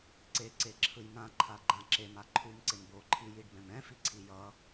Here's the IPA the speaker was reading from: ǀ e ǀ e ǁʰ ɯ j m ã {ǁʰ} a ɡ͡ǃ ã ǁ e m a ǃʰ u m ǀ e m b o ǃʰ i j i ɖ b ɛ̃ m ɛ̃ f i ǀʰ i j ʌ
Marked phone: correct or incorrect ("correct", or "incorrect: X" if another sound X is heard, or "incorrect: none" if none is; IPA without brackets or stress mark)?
incorrect: ǃʰ